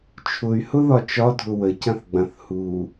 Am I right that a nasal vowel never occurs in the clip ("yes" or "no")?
no